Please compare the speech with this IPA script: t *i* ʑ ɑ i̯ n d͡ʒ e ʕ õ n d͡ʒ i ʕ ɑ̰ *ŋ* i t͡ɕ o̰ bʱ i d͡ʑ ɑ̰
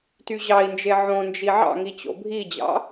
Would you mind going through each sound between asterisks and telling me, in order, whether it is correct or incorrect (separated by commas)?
incorrect, correct